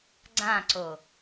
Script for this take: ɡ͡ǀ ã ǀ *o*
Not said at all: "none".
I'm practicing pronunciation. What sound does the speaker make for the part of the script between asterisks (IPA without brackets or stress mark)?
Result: o